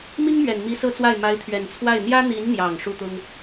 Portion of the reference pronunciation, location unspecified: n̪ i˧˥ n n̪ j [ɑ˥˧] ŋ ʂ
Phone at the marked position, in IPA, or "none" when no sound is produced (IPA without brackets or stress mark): ɑ˨˩